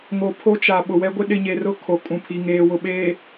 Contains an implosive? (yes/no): yes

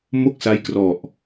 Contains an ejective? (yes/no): no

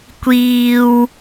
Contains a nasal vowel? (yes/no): no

